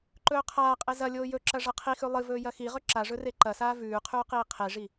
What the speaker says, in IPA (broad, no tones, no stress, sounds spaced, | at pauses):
ǃ ɵː qʰ aː qʼ e z ɐ lʲ oː j ɵ ǁ ɐ ʐ ɐ qʰ i x ʉ lˠ ɨ v ɵː j ɐ x i ʁ ɵ ǁ a ʐ ɵ r e ǃ ɐ s aː v ʉː qʰ ʉː q iː qʰ e ʐ i